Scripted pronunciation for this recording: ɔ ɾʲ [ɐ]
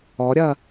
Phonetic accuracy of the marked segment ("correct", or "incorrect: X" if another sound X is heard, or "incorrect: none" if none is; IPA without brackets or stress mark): correct